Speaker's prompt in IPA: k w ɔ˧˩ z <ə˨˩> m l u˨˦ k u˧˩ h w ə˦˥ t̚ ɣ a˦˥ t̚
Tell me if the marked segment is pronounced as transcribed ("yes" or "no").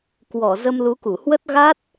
no